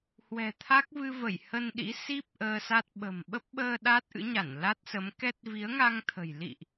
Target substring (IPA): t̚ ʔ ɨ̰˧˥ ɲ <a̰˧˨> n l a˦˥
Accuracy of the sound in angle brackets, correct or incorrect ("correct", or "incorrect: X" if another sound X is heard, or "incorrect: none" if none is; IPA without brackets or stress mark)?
incorrect: a˧˩